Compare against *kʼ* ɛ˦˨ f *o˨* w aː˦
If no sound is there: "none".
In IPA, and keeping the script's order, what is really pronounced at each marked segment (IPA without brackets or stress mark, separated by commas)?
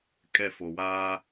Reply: kʼ, o˨